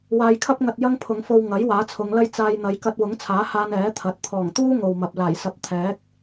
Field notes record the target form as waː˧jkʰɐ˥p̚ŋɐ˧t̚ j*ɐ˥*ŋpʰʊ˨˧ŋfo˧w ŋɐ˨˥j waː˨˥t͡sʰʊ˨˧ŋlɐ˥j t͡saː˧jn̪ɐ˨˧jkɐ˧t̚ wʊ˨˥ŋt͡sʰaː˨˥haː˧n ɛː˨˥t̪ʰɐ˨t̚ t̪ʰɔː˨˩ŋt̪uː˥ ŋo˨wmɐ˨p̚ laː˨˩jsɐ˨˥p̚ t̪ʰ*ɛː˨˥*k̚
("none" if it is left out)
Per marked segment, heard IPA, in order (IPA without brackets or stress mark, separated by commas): ɐ˥, ɛː˨˥